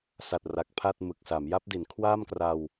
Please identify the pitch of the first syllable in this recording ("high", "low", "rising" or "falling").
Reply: low